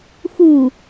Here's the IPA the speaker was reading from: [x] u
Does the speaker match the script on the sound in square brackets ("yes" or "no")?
yes